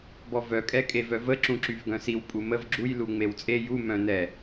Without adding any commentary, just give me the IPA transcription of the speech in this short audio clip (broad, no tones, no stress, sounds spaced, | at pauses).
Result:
b ɔ v œ kʼ ɛ kʼ e v œ v ə ǁ ũ ǁ y v ɡ œ̃ s i w pʼ u m ə v ɡ͡ǁ u j l u ŋ͡m e w t͡sʼ e j u m œ̃ n ɛ